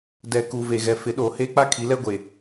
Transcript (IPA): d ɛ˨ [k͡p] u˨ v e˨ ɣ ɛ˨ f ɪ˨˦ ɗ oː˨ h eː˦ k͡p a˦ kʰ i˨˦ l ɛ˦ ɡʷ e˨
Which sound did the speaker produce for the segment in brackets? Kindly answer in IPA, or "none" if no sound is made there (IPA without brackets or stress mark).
k